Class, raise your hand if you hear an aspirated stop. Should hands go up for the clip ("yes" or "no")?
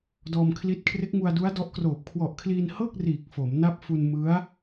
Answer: yes